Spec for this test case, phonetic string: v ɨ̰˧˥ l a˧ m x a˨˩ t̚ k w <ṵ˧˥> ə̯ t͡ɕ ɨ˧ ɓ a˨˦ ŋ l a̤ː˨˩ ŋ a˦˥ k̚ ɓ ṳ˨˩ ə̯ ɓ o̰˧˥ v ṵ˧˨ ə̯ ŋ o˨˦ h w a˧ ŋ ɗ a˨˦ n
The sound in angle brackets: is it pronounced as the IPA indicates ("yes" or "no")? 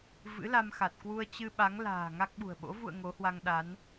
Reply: no